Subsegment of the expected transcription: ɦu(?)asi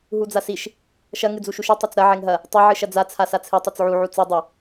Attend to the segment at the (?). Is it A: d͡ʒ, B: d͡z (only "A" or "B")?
B